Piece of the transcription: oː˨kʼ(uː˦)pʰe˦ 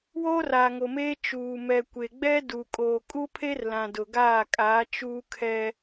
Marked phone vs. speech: incorrect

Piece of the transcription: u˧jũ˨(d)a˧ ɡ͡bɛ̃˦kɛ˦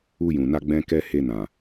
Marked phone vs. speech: incorrect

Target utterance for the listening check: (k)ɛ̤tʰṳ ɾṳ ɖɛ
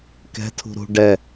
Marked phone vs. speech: correct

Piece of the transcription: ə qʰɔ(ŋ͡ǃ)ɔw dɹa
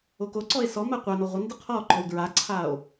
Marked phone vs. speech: incorrect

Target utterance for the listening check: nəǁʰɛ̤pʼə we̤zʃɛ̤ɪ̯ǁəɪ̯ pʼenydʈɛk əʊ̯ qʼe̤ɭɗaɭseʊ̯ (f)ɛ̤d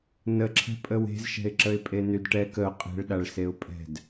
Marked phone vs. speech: incorrect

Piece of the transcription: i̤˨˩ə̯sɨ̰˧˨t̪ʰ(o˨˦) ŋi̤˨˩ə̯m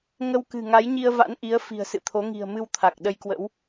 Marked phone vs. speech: correct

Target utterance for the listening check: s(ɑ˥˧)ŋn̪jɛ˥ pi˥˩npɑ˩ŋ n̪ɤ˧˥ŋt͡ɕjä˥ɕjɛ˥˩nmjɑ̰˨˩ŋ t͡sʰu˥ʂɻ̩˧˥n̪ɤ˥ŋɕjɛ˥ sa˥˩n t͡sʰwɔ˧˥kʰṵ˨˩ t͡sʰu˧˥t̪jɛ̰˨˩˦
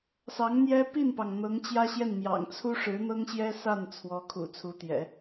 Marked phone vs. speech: incorrect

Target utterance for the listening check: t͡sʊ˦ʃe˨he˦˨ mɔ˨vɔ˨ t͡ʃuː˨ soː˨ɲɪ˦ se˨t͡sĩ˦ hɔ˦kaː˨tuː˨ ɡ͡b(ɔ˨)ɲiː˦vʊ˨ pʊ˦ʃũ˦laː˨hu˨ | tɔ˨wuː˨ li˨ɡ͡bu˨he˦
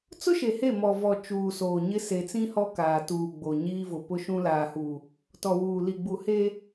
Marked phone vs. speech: incorrect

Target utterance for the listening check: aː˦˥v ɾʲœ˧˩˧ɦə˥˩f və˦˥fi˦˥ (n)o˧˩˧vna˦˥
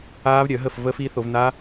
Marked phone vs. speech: incorrect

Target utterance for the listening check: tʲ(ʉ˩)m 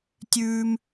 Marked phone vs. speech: incorrect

